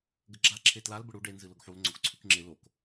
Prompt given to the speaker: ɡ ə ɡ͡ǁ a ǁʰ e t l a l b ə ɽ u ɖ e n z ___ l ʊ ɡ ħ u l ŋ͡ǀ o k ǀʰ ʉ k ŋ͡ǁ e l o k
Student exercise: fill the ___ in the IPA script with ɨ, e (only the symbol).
ɨ